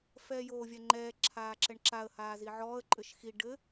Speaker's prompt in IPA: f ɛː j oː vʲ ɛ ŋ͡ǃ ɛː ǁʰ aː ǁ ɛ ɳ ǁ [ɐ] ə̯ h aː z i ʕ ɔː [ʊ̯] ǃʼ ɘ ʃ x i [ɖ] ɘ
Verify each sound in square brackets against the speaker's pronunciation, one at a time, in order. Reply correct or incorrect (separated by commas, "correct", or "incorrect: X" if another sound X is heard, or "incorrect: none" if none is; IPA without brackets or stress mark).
incorrect: a, incorrect: ə̯, correct